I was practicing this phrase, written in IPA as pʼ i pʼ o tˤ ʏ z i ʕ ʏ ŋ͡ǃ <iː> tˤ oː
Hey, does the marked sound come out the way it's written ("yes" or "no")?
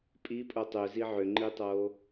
no